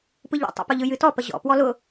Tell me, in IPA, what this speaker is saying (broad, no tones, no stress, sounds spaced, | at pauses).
p ɯ ʎ ɔ̰ tˤ ə̰ p ʊ ʎ ɯ j ɨ t ɔ p ə ʑ ɔ̰ p w ɔ l ʊ